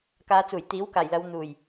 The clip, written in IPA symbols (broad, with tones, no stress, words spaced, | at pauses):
kaː˨˧t͡suː˨˩j t̪iː˨˥wkaː˨˩jlɐ˨˧w n̪uː˨˩j